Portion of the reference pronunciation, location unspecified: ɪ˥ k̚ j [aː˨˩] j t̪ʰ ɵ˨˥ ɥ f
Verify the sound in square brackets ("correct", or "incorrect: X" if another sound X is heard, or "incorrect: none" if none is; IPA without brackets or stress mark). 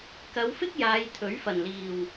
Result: incorrect: aː˨˧